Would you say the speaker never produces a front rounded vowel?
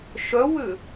no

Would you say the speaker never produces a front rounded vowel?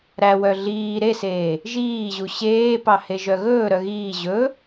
no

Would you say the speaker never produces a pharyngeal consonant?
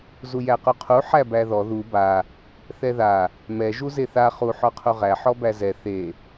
no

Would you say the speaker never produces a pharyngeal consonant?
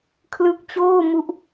yes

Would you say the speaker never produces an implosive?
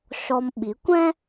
no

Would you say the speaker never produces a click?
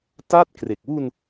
yes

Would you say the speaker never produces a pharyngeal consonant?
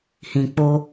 yes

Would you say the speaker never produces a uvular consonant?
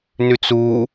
yes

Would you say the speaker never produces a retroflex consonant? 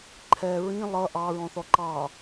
yes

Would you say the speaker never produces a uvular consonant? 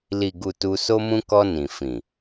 yes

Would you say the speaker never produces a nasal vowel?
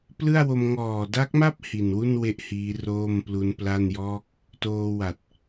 yes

